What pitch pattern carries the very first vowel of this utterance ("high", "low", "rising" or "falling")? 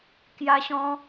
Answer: high